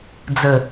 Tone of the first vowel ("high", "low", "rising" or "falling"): low